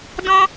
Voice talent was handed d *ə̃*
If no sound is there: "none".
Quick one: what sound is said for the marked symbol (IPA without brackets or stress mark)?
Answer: ɔ̃